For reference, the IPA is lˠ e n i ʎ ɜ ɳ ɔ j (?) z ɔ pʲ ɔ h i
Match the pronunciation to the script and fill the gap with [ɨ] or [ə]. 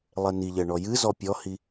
ɨ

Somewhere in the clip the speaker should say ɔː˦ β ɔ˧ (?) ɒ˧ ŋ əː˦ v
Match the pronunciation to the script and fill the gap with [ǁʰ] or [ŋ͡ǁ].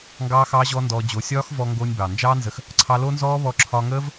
ǁʰ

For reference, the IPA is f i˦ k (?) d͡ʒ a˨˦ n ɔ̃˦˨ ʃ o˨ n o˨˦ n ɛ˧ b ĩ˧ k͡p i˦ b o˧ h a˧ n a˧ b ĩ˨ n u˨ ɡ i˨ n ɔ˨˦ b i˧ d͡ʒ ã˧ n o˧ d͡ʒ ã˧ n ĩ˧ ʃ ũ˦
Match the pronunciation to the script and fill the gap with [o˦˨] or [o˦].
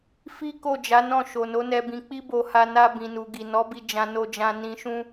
o˦˨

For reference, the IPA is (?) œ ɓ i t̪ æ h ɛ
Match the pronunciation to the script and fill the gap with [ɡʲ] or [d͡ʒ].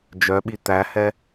d͡ʒ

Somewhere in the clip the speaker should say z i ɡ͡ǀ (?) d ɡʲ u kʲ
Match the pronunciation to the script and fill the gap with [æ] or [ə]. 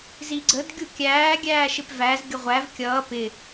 ə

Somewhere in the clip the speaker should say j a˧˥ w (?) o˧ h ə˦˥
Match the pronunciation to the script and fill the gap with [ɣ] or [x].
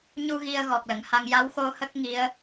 x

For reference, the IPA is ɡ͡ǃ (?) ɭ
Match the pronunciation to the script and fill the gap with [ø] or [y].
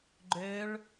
ø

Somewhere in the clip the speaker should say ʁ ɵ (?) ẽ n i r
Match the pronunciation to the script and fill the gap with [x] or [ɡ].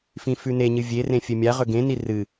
ɡ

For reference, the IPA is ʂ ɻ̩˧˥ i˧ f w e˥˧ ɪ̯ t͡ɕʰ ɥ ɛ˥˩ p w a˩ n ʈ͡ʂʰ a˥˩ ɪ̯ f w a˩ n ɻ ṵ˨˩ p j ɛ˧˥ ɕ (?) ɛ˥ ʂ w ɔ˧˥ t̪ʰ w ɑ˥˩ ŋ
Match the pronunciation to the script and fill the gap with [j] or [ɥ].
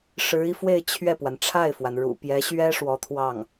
ɥ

